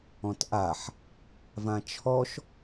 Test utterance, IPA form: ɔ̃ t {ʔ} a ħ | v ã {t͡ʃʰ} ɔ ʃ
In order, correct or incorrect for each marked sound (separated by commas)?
correct, correct